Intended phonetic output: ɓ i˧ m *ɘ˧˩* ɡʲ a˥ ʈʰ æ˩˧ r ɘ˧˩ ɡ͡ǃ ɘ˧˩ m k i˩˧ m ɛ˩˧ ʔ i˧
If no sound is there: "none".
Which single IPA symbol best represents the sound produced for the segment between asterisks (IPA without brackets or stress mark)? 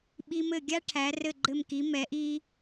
ɘ˧˩